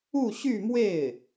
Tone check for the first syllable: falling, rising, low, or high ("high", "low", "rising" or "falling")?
falling